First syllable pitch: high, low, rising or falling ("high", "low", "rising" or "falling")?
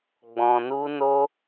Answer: low